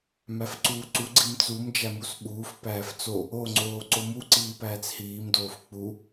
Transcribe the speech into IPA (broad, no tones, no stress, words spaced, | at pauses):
mæfǀuːǀu ɡ͡ǀimt͡sum d͡ʒæmusɓuːf pæːft͡so | oŋ͡ǀoː ǀomu ǀiːpæːt͡shiːm doːfk͡pu